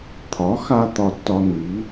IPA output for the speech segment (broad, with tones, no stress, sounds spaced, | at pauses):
t̪ʰ ɒ˩˥ x a˧ t̪ ɒ˧ tː ɒ˧ n i˩˥